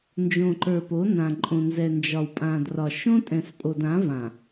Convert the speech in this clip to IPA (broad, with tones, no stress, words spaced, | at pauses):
nd͡ʒõ˨ǃə˞˨po˨˦nã˨ ǃʼõ˨nzɛ˨nd͡ʒɒ˨w pʼã˨drɒ˨ ʃõ˦tʼɛ̃˨spʼo˨d ã˨˦vã˨